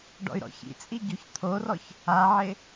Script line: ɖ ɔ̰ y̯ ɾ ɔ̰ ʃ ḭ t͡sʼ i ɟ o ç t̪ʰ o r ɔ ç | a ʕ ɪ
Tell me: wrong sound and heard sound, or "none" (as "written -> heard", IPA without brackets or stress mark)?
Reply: ʃ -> ç